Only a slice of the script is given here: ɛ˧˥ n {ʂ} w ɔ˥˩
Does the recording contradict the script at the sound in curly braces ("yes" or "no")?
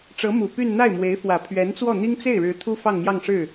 yes